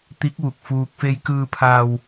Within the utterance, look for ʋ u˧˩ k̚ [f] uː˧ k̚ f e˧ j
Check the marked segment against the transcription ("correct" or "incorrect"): correct